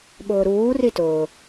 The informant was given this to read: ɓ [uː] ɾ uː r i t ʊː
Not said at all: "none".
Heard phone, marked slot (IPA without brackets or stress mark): ʊː